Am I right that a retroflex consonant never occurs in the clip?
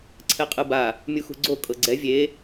yes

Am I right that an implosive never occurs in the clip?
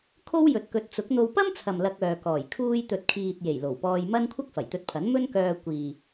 yes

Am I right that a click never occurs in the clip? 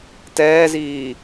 yes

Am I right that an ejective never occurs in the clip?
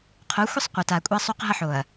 no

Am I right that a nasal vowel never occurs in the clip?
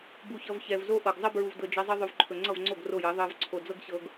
yes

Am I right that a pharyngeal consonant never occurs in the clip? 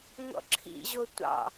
yes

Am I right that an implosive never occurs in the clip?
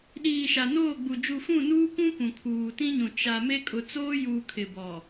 no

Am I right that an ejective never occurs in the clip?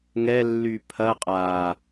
no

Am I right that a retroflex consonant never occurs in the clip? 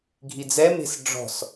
no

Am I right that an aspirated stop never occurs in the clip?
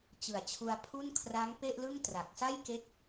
no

